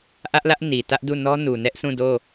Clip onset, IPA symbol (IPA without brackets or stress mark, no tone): ʔ